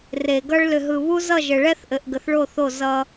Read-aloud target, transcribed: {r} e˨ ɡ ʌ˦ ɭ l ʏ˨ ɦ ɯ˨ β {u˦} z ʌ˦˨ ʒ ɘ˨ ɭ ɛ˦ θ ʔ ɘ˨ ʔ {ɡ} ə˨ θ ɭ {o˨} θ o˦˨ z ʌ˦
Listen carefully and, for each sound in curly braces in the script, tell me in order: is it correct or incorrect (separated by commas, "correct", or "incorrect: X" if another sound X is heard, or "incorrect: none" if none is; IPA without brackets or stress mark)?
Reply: correct, correct, correct, incorrect: o˦˨